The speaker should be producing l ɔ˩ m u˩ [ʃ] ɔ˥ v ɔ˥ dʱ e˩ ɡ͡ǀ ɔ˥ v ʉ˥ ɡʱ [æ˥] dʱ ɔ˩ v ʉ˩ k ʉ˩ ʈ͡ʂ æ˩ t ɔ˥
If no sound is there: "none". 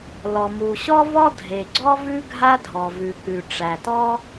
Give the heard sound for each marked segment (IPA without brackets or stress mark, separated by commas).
ɕ, a˥